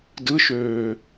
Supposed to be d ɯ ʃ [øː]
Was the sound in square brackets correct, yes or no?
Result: yes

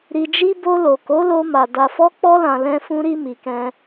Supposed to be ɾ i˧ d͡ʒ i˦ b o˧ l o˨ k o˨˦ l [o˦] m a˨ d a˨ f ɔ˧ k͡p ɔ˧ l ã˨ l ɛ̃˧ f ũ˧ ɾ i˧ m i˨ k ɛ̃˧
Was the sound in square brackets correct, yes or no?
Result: no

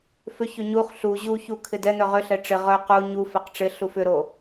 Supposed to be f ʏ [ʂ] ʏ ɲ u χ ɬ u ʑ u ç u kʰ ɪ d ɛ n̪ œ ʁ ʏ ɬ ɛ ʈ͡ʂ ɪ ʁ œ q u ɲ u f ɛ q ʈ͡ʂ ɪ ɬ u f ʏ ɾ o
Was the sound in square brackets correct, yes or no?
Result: no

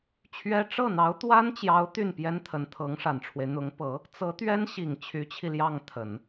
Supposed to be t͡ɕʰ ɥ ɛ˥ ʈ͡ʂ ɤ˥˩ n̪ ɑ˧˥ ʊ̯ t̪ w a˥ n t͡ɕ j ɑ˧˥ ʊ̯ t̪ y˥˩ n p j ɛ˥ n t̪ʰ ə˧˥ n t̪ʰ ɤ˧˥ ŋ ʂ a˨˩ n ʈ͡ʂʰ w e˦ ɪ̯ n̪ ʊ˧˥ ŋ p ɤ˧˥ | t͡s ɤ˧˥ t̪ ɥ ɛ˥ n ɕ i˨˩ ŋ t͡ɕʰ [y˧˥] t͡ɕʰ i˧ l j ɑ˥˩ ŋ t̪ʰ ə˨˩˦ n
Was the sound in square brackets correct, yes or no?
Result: yes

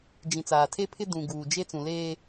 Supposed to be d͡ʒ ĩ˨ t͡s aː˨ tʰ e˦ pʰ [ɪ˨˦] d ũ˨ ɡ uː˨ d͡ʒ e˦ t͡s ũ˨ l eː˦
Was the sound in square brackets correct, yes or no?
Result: no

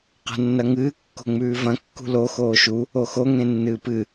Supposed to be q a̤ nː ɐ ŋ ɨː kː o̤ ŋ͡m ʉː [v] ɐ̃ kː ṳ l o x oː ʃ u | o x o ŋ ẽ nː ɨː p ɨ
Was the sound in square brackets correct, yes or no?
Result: yes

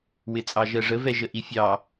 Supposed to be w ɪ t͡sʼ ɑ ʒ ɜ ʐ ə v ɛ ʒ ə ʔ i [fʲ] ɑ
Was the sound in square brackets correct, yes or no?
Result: yes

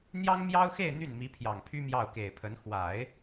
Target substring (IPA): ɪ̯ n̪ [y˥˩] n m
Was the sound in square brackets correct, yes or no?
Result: yes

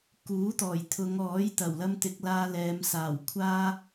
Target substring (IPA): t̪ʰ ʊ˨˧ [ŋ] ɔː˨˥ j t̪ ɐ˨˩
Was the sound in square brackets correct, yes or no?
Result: yes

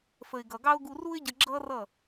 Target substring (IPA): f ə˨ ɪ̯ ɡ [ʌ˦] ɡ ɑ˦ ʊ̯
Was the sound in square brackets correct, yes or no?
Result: no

